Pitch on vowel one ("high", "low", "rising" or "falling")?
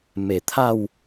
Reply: low